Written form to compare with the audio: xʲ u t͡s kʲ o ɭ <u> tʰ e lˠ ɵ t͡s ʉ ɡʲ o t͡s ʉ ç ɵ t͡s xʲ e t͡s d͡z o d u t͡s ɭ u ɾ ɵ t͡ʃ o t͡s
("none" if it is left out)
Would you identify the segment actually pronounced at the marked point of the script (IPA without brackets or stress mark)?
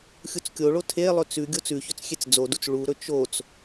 o